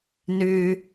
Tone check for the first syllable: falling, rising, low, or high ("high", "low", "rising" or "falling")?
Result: high